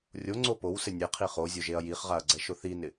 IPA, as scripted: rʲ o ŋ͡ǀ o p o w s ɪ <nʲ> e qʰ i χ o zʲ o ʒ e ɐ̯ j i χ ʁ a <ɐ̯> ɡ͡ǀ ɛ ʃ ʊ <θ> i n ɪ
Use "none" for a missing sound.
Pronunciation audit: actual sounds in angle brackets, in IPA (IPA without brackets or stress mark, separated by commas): nʲ, ɐ̯, θ